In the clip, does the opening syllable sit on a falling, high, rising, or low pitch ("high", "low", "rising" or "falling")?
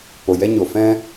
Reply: low